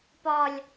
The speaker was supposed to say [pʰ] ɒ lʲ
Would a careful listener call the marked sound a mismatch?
yes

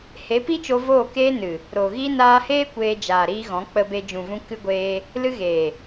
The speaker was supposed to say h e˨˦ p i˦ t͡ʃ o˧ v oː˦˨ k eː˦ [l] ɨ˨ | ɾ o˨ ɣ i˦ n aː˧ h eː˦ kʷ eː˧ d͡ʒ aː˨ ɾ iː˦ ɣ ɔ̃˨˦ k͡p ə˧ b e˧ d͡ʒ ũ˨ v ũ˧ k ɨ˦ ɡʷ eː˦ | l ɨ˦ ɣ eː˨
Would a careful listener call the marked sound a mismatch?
yes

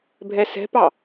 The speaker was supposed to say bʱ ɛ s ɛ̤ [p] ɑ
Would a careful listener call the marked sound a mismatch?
no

